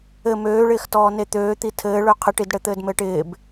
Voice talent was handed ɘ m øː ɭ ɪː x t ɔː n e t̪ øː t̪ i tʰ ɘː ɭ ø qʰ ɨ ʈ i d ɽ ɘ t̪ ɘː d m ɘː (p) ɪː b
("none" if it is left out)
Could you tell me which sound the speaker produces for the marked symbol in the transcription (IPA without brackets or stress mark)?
ʈ